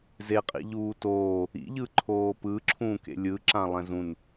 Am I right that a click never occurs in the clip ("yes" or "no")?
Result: no